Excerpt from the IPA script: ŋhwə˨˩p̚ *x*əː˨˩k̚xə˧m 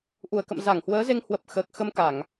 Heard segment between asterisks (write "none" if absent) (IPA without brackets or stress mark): x